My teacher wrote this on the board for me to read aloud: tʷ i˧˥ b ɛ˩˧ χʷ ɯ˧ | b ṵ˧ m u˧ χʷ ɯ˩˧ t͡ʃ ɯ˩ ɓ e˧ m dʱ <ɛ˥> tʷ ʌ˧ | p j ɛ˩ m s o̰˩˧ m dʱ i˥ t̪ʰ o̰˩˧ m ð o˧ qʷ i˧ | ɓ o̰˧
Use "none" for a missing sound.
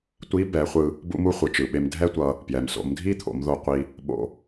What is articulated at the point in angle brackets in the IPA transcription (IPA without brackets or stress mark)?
ɛ˥